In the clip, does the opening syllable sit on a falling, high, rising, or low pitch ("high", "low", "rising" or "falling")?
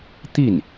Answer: falling